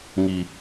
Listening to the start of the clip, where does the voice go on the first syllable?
low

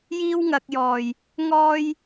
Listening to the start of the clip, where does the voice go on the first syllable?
high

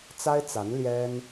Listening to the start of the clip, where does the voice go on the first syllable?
high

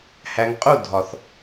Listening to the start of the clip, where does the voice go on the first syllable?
low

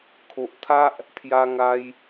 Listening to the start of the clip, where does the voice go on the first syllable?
low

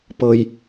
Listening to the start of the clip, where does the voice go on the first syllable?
low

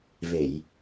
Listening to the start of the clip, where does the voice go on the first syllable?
low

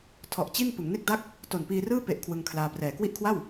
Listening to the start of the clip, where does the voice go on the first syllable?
low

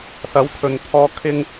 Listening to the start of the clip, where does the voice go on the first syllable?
rising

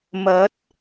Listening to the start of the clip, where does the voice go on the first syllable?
rising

